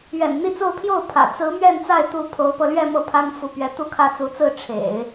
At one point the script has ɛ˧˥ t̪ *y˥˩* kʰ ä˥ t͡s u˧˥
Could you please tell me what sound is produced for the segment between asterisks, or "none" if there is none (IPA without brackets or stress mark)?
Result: u˥˩